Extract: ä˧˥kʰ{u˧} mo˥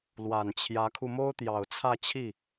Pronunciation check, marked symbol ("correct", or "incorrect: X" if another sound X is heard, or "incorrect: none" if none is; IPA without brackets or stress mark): correct